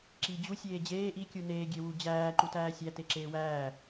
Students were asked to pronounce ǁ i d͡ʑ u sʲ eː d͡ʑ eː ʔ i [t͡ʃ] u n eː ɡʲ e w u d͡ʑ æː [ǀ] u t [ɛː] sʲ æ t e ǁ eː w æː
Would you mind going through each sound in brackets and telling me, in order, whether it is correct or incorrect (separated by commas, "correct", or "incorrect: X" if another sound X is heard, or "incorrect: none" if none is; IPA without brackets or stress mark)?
incorrect: kʲ, incorrect: ǃ, incorrect: æː